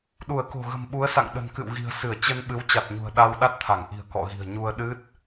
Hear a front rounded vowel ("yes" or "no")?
no